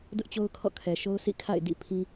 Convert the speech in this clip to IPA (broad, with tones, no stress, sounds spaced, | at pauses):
d ʊ˦ ʔ t͡ɕ o˦ ʊ̯ kʰ ɔ̰˦˨ kʰ ɛ˨ ʃ o˦ ʊ̯ s ḭ˦˨ kʰ a̰˦˨ ɪ̯ d ḭ˦˨ pʰ ĩ˦